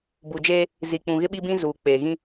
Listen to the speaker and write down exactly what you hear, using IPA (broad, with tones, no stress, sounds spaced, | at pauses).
b u˨ d͡ʒ eː˦ | z i˨ k͡p ũ˨ ɣ ɪ˦ ɓ i˦ b ĩ˦ z uː˨ k͡p eː˨ ɣ ĩ˦